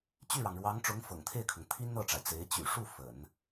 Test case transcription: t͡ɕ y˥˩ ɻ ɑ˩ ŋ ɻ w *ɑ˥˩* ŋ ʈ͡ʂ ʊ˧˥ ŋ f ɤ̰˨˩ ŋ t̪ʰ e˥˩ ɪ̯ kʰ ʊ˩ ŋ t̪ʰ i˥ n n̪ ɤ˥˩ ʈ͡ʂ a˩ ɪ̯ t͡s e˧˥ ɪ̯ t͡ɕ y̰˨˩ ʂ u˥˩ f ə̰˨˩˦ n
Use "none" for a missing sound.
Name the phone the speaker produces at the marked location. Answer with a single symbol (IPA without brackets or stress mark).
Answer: ɑ˧˥